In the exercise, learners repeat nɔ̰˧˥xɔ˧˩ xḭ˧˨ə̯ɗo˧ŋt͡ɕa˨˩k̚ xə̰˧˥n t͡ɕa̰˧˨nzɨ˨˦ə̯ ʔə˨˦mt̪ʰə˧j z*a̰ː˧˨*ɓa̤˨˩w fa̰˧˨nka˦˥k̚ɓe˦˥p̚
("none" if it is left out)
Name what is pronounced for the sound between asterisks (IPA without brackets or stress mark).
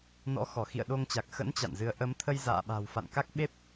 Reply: a̰ː˧˨